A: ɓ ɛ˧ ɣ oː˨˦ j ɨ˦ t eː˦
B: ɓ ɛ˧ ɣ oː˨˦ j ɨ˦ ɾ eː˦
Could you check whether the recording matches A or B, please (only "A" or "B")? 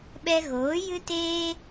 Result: A